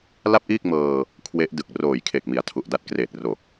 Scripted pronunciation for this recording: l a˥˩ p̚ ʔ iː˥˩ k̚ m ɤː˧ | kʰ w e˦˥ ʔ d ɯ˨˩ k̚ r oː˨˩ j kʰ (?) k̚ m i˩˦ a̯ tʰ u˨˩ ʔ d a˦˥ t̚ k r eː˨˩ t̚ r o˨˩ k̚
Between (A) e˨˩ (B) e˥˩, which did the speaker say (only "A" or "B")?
A